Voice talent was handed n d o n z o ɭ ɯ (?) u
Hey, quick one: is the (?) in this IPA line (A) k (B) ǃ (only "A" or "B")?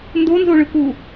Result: A